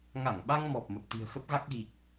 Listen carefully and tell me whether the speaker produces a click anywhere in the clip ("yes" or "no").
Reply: no